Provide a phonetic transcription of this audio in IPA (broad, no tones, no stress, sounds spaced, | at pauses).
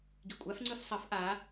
ɡ i kʷʼ a f ŋ͡ǀ ɯ f sˤ ʌ f ʔ a